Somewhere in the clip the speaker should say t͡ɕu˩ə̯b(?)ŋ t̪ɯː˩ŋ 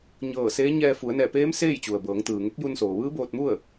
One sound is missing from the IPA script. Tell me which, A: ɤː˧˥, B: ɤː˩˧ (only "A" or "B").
B